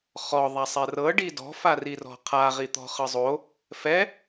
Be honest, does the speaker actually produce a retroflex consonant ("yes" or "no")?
yes